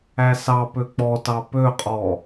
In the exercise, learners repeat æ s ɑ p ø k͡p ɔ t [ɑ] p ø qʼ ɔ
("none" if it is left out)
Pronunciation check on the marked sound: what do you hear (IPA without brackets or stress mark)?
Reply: ɑ